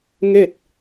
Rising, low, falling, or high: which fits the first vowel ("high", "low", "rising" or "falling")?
falling